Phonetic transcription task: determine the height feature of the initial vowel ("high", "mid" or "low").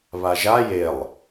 low